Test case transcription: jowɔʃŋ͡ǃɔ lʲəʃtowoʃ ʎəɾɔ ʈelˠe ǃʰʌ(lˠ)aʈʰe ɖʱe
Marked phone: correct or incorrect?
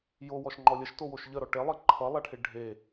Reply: correct